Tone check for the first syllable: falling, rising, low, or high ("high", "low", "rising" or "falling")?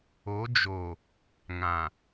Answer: rising